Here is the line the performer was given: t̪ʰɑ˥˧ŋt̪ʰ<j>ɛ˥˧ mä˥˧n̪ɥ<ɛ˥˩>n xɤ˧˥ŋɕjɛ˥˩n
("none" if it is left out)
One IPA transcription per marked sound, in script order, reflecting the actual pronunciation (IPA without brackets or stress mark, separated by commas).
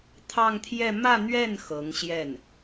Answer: j, ɛ˥˩